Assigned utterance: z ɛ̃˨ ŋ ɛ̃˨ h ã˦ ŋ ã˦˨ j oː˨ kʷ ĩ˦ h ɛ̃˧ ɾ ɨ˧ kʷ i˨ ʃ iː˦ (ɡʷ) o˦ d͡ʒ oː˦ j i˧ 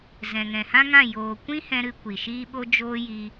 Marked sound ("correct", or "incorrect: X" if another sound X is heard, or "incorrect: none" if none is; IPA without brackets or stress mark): incorrect: ɓ